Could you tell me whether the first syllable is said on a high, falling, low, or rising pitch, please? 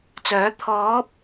rising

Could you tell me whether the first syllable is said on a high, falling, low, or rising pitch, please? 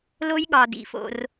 high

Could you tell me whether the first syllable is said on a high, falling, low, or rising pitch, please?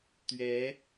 rising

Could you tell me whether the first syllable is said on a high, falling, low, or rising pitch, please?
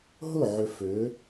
falling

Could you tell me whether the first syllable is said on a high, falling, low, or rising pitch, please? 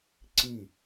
falling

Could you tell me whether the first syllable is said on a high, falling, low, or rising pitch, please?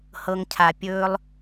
low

